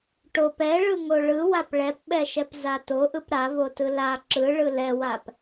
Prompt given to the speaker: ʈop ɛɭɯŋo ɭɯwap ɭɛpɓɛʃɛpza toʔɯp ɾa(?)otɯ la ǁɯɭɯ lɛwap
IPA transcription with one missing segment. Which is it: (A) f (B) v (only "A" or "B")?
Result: B